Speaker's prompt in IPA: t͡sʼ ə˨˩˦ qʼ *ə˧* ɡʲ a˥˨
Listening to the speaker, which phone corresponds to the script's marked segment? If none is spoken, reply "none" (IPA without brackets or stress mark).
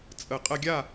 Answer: ə˧